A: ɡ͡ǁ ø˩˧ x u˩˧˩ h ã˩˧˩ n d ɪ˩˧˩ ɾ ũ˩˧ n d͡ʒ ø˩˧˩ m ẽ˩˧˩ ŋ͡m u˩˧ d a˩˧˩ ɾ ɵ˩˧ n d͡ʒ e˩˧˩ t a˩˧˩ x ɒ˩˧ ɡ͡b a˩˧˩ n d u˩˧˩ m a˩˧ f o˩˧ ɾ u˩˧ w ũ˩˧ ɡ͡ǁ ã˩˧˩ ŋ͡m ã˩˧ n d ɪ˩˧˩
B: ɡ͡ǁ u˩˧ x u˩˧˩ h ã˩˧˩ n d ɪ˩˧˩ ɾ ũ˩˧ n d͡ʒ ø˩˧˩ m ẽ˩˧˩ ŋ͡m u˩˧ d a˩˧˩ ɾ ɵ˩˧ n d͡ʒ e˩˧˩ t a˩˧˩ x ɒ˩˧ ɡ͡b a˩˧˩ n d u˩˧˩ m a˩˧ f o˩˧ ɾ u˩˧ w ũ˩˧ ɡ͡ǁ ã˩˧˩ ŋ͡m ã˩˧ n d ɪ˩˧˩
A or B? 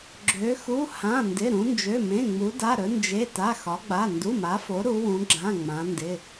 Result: A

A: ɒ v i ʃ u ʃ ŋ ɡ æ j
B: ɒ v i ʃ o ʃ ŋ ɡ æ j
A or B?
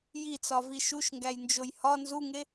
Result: A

